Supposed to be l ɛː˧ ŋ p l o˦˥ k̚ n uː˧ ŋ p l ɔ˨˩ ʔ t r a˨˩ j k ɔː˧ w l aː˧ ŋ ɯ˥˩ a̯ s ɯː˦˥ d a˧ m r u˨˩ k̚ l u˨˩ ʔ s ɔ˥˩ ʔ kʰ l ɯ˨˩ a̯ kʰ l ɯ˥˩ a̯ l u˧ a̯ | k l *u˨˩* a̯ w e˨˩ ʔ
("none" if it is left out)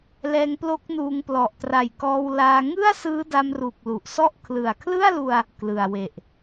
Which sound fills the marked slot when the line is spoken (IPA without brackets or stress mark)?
ɯ˨˩